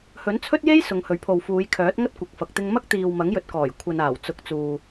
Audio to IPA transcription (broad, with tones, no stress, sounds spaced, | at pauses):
h ɵ˨˥ n t͡sʰ ɵ˥ t̚ j e˥ j s ʊ˨˧ ŋ h ɵ˨˥ ɥ pʰ o˨ w f uː˨˧ j kʰ œː˨˥ t̚ ŋ ɐ˥ t̚ kʷ ɐ˨˥ k̚ f ɐ˨ k̚ t̪ ɪ˧ ŋ m ɐ˥ k̚ t̪ iː˨ w m ɐ˨˥ ŋ j ɵ˨ t̚ k ɔː˨˩ j kʷʰ ɐ˨ n aː˨˩ w t͡s ʊ˨˥ k̚ t͡s uː˨